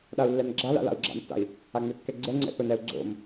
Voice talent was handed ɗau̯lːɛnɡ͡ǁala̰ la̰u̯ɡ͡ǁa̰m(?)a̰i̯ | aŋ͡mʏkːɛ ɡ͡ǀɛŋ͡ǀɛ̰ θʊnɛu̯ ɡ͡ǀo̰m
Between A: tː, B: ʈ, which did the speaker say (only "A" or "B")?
A